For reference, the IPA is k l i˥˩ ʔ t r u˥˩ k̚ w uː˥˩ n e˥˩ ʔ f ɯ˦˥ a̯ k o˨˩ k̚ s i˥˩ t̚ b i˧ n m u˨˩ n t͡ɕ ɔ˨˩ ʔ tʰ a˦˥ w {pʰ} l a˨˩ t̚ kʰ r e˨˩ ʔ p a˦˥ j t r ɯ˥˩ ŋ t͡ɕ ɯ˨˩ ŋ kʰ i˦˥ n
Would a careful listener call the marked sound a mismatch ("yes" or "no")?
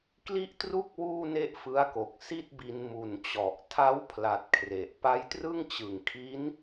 no